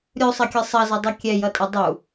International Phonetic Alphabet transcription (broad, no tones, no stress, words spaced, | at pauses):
ɾʲusˤɐkʲɨ sˤɐzʌdˤu kʲɛjʌtʼɨ dˤu